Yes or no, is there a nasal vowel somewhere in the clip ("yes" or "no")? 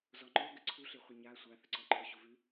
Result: no